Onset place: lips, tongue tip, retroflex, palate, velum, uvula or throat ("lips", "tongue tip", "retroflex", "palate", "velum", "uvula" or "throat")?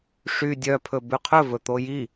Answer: retroflex